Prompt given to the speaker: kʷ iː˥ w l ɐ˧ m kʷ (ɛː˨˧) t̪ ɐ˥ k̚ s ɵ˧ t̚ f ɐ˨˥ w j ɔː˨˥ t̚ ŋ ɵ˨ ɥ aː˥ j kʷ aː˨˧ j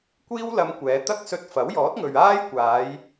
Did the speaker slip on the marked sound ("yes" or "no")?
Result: no